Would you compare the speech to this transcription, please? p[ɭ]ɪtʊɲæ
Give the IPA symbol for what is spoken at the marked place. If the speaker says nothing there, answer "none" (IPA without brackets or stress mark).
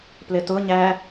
l